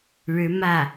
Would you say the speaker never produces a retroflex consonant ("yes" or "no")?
no